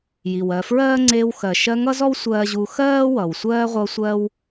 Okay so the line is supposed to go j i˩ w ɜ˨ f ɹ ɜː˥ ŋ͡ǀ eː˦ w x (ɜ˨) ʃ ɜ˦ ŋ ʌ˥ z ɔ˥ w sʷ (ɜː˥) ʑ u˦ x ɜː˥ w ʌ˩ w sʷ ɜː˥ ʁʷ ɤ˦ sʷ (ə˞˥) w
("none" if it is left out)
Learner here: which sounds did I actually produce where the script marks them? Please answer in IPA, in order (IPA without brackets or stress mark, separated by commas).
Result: ɜ˨, ɜː˥, ɜ˥